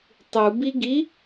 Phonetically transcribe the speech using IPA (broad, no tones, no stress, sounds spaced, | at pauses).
tˤ u b i ɡ i